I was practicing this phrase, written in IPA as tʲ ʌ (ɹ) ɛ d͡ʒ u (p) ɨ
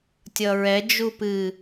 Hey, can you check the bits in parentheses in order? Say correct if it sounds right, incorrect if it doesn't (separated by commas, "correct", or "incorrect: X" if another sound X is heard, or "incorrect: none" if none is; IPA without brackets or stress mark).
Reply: correct, correct